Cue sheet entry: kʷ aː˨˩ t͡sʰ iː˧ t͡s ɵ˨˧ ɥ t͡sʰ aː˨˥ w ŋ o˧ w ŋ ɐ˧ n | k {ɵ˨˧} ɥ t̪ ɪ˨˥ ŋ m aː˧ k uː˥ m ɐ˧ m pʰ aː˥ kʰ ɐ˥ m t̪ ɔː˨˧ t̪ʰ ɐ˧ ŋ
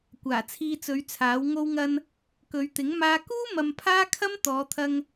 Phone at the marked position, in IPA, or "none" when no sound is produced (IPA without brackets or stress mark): ɵ˨˧